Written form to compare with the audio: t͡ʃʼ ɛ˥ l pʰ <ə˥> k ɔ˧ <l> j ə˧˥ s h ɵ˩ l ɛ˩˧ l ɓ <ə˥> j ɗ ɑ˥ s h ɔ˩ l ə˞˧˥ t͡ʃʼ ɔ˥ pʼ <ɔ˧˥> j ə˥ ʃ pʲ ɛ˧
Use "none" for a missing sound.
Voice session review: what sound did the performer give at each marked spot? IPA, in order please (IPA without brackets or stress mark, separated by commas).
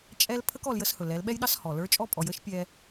ə˥, l, ɛ˥, ɔ˩˧